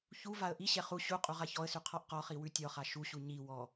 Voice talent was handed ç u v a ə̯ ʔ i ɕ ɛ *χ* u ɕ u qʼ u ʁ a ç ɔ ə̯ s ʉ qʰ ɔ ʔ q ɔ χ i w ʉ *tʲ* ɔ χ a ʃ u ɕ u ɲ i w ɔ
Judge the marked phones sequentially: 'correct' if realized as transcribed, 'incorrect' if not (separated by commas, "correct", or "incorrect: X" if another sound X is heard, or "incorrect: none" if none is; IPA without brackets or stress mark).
correct, correct